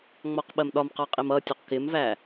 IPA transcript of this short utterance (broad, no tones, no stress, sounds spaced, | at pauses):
ŋ͡m ɔ q ɓ ɜ m ɗ ɒ m q ɑ qʼ i m ʌ tʲ u q k ɪ m v æ